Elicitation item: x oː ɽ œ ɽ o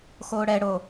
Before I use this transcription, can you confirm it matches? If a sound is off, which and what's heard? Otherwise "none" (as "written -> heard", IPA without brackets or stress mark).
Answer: œ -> ɛ